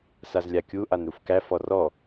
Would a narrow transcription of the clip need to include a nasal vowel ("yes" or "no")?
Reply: no